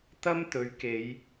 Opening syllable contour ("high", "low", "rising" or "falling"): high